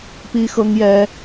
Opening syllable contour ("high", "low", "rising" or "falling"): high